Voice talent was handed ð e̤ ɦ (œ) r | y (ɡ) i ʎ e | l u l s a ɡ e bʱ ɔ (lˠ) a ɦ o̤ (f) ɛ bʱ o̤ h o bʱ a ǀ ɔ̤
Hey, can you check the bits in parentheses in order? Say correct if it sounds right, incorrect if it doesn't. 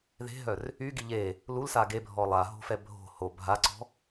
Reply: correct, correct, correct, correct

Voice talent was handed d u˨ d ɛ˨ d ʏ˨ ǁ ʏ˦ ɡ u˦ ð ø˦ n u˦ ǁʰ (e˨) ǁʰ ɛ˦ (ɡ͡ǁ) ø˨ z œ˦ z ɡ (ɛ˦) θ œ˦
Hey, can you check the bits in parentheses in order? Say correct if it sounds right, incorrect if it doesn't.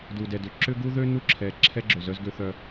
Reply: incorrect: ɛ˨, correct, incorrect: ø˦

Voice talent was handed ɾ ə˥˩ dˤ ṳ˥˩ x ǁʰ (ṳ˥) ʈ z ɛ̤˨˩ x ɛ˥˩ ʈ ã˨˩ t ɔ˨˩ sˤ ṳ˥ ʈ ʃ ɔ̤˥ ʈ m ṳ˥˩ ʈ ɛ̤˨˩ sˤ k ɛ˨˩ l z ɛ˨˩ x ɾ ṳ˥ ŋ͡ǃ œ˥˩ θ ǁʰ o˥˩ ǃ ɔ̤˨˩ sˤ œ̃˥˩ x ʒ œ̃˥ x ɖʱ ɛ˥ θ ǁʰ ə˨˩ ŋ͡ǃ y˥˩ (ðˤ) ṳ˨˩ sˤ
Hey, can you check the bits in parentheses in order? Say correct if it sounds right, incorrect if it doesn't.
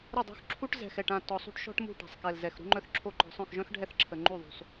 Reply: incorrect: u˥, correct

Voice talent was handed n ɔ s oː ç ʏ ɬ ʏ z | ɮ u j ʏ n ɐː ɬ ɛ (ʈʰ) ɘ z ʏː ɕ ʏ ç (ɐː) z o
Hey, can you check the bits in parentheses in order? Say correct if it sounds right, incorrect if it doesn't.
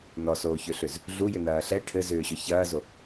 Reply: correct, correct

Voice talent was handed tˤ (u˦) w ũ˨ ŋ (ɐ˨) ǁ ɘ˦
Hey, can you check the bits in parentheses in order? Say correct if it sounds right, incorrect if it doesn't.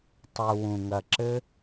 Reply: incorrect: u˨, correct

